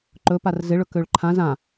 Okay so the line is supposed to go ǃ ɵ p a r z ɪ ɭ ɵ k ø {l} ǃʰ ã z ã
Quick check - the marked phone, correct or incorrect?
incorrect